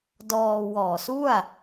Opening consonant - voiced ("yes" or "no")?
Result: yes